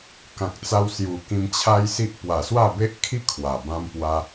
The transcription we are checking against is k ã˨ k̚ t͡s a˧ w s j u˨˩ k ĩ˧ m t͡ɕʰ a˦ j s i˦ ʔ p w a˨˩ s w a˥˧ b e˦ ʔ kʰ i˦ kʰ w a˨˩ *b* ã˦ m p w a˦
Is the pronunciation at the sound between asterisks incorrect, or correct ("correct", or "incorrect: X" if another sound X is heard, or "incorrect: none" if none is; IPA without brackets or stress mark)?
correct